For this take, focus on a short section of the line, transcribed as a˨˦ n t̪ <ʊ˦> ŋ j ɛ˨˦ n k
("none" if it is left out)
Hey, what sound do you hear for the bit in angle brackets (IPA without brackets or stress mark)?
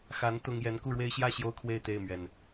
ʊ˦